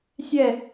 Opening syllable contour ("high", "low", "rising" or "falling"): falling